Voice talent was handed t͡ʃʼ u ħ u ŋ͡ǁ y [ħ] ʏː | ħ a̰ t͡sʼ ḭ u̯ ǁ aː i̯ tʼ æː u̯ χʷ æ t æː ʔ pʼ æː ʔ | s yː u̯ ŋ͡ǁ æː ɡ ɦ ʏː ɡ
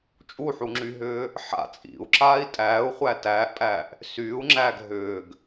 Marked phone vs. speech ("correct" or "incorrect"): incorrect